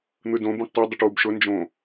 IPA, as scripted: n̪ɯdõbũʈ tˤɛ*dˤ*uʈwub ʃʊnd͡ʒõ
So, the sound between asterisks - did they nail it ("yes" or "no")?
yes